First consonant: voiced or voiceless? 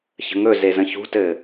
voiceless